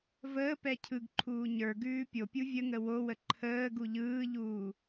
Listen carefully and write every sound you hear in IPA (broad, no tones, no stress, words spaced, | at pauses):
vəːpɛ cʰɯɡǃʰuː ɲə˞ ɡʉːpʲopʲu vʲəŋə wowə ǃʰəː ɡuʎɯːʎuː